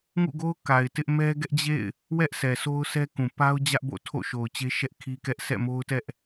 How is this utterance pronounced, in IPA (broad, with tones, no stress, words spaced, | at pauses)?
ŋṵ˦˨ɡo˦ʊ̯ ka˨ɪ̯tɪ˦ʔ mɛ˦ɡɛ˦ʔd͡ʑḛ˦˨ɪ̯ | wɛ˦ʔsʰɛ˨so˦ʊ̯ sʰɛ˦kũ˨ pa˦ʊ̯d͡ʑä˦ʔ bo̰˦˨ tʰo̰˦˨ʃo˨ʊ̯t͡ɕe˦ʃɛ˦ʔ kʰi˦kɛ˦ʔ sɛ̰˦˨mo˦ʊ̯tɛ˦ʔ